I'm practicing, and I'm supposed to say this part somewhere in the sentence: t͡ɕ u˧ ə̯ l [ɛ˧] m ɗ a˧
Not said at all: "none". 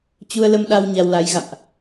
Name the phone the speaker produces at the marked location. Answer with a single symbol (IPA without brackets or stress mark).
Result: ə˧